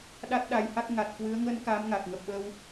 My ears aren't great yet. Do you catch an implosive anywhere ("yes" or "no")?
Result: yes